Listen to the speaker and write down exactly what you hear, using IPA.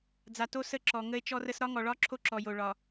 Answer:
d͡z a˨ t o˦ s ə˦˨ ǁ ɔ˨ ŋ ə˦ e̯ t͡ʃ ɔ˦ r ə˦ s ɾ ɒ˦ ŋ ɔ˨ ɭ ɒ˦ ǁʰ o˦ ǁ ɔ˨ j o˨ ɭ ɒ˨

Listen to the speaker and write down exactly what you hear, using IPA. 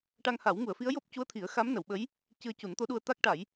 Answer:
ʈ a˧ ŋ h a˨˩˦ w ŋ u˨˩˨ ə̯ f i˧˥ ə̯ j o˦˥ p̚ c u˧˥ ə̯ t̪ʰ i˨˩˦ ə̯ x a˧˥ m n ə˨˩˨ w ɓ ə˧˥ j | c ɨ˧ ə̯ c u˨˩˦ n t̪ o˧˥ ɗ u˧ ə̯ t̪ a˦˥ k̚ ʈ a˨˩˦ j

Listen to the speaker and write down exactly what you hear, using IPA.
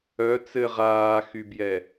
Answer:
œ t͡s ɘ ʁ aː x y b j ɛ

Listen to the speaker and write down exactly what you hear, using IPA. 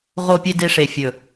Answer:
ʁ o˧ pʲ e˧ d e˧ ʂ e˨ fʲ ɵ˨

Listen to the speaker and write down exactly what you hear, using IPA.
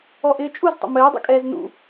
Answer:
ɔ ʔ ɪː t͡ʃʼ u z tˤ ə̰ m ɘː dˤ ṵ kʼ ɛː z n ṵ

